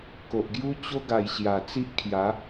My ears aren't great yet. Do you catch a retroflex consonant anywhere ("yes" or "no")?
no